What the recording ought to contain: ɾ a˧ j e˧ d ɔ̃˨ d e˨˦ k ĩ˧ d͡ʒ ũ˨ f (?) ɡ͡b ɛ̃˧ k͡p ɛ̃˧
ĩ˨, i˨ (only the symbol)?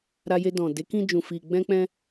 i˨